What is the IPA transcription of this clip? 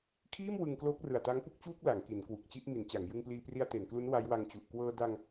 kʰ iː˥˩ m w ɯ˧ ŋ k l oː˦˥ k̚ r ɯ˨˩ a̯ t a˦˥ ŋ p u˥˩ k̚ t͡ɕ uː˥˩ k̚ l a˩˦ ŋ k i˩˦ n k w u˨˩ k̚ t͡ɕ i˥˩ ʔ m i˩˦ n t͡ɕ a˩˦ ŋ j ɯ˧ ŋ p l iː˧ p r i˧ a̯ t e˩˦ n k l u˦˥ n w a˦˥ j w a˧ ŋ t͡ɕ u˨˩ ʔ k w ɤː˧ d a˧ ŋ

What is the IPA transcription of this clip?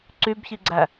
ǀ y b ç i ɡ͡ǀ æ

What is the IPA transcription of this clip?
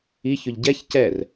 i ç ʊ ʎ ɟ ɛ ç c ɛ r

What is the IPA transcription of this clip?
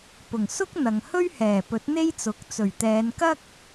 p ʊ˨˩ ŋ s ʊ˥ k̚ n̪ ɐ˨ ŋ h ɵ˥ ɥ h ɛː˨˩ p ɵ˨˥ t̚ n̪ e˥ j t͡s ʊ˨˥ k̚ t͡s ɵ˨˩ ɥ t̪ ɛː˨˧ n k ɐ˥ k̚

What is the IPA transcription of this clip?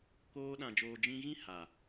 k oː˧ ɗ ã˨ d͡ʒ oː˨ d͡ʒ ĩ˧ ɣ ĩ˦ h a˨

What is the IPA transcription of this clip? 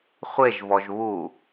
χʷ e ʒ v ɔ ʒ β u

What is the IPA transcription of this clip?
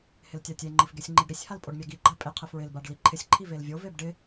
h ɪ l tʲ a tʲ e ŋ͡ǃ i f ɡ e sʲ ŋ͡ǃ i ɖ ɾ i sʲ h a l pʼ o ɖ mʲ a ɡ i ɡ͡ǃ a pʼ ɪ qʰ ɪ f ɹ ɪ l b a ɖ l i ǃʰ ɪ sʲ ǃʰ i v e l vʲ o v e b ɖ ɪ

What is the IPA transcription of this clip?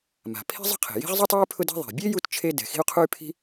m a̤˩ pʰ i̤˥ zˤ ə̤˥ qʰ e̤˩ j i̤˥ ʁ zˤ y˥ tˤ e˥ y̯ pʰ ʊ˥ d ɛ̤˥ ðˤ e̤˩ bʲ e˥ j u˥ t t͡ʃʰ e˥ d ɛ̤˩ x i̤˥ u̯ qʰ u˥ y̯ pʰ i̤˥

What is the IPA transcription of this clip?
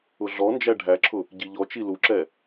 ʊ ɮ ɔ n d͡ʒ æ ɖʱ æ ǁʰ ʊ | ɟ i ʎ ɔ t͡ʃ i l u ǁ ɛ

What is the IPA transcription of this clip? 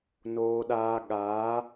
n oː˦ ɗ aː˦ ɠ aː˨˦

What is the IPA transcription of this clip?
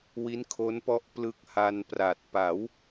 w i˦˥ n kʰ o˦˥ n p ɔ˦˥ ʔ p l ɯ˦˥ k̚ h a˧ n p r a˨˩ t̚ p a˩˦ w

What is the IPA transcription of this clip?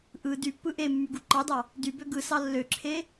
ʔ ɯ d y pː ɯ ʔ e mː y ɡ u ǃ ɑ d ɑ | d y b ø ɡ ɯ s ɑ lː ø ǁʰ e

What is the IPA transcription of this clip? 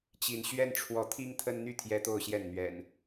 t͡ɕ i˨˦ n ɕ ɥ ɛ˦ n ʈ͡ʂʰ w ɔ˨˦ t̪ʰ i˦ ŋ t̪ʰ ə˦ n n̪ y˥˨ t̪ʰ j ɛ˦ t̪ o˥˨ ʊ̯ ɕ j ɛ˥˨ n n̪ ɥ ɛ̰˨˩ n

